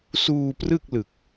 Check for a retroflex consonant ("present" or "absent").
absent